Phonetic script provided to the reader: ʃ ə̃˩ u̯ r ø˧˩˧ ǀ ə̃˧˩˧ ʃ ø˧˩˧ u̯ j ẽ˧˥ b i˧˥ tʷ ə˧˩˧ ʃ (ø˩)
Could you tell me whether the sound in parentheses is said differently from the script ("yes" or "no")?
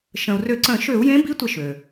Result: no